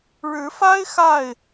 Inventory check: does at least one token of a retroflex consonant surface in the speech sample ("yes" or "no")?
yes